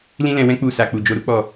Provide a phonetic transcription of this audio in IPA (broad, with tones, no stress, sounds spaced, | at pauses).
l ĩ˦ l ɛ̃˧ w ɛ̃˦ k͡p u˦˨ s a˧ k͡p u˨ d͡ʒ o˧ ɾ u˦ k͡p ɔ˦˨